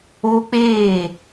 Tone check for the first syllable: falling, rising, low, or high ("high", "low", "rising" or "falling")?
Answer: high